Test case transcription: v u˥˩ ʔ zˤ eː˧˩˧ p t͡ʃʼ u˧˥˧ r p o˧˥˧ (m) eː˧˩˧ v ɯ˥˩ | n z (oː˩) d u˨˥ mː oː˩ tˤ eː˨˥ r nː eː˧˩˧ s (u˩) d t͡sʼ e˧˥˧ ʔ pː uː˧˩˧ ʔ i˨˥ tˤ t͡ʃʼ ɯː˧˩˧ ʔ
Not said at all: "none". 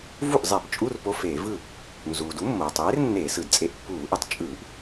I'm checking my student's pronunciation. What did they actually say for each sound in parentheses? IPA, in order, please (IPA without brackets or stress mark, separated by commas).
f, uː˩, ɯ˩